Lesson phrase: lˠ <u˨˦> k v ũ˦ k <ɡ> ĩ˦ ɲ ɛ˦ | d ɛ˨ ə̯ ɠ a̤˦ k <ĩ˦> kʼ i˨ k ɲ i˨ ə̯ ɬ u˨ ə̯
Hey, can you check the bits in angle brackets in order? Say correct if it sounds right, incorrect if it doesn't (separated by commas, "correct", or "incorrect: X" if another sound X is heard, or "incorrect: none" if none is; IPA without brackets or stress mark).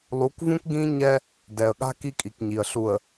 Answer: correct, correct, incorrect: i˦